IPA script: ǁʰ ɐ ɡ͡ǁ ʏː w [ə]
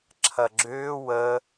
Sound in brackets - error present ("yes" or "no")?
no